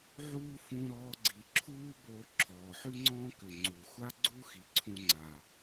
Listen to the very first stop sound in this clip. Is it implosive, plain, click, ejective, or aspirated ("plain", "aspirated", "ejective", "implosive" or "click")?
click